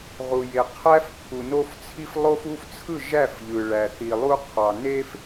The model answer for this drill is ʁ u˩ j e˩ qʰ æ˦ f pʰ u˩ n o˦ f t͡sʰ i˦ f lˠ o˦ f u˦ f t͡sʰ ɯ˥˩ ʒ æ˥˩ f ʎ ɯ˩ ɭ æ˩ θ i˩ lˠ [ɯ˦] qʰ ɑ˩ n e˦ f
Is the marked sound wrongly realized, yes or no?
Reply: yes